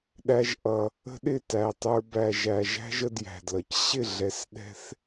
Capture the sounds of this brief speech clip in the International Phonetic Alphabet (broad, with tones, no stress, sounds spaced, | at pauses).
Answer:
ɗ æ˧ ʒ ʔ ʌ˨ | ə̤˦ ɗ ɪ˦˨ t æ˨ tˤ ə˞˧ b æ˨ ʒ æ˨ ʒ æ̤˦ ʒ ə˧ d j æ̤˨ d l ʌ˨ c ɕ ɪ˦˨ ɮ ɛ˨ s ɗ ɛ̤˧ θ